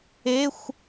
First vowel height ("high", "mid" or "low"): mid